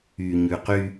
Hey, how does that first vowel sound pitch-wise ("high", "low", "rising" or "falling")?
low